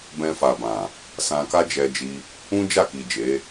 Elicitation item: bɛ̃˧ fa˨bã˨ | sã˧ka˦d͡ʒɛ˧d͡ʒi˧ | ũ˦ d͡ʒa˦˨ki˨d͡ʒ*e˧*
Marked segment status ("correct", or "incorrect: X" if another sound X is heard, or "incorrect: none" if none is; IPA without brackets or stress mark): incorrect: e˨˦